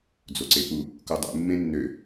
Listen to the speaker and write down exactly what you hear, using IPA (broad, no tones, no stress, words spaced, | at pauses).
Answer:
d͡zoǀepu | kudˤṵ mːẽnːø